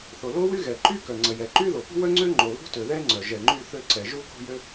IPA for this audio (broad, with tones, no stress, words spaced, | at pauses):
θo˩lo˥wy˥ ɣɛ˩ǃy˥ kœ˩ ŋ͡ǀə˩jɛ˩ǃy˥ ðo˩pṳ˥wœ˥ ŋ͡ǀø˥ ŋ͡ǃo˩lṳ˥tø˩ðɛ˥ ŋ͡ǀœ˩ ʒɛ˩ ŋ͡ǃy˥ θø˥ǀɛ˩ ʒu˥ko̤˥jø˥